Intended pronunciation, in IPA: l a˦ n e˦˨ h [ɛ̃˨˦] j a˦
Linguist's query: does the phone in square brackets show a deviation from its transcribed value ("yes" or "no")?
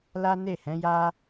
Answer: no